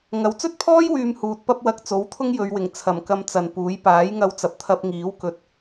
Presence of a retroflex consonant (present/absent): absent